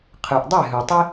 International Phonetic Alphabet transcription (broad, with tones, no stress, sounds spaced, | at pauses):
qʰ ɯ˩ ʔ dˤ e˥˩ ɦ ɯ˩ tˤ i˥